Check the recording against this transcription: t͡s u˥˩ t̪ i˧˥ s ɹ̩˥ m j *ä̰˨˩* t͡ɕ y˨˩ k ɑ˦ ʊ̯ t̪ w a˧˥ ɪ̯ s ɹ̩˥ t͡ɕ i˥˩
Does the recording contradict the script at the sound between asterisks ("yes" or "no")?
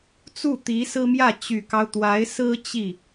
yes